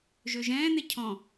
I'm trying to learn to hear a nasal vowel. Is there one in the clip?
yes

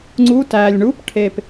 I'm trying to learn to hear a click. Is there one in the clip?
yes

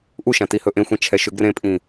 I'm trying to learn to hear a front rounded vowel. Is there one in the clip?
yes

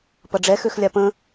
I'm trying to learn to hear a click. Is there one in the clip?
no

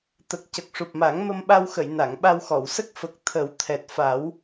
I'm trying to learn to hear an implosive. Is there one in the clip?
yes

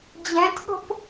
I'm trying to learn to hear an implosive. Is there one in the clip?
yes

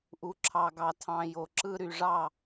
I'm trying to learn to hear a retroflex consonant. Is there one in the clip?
yes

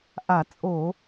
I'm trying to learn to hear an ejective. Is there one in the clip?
yes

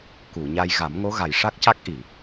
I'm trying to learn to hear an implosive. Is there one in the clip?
no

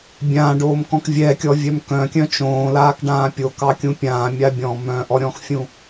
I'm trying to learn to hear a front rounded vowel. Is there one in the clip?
yes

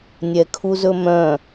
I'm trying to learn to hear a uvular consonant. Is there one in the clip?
no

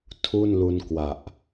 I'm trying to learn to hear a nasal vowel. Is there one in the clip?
no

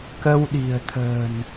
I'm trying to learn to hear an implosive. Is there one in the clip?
yes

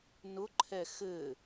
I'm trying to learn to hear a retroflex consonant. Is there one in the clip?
no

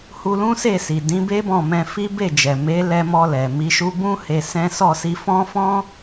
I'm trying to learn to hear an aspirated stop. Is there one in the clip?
no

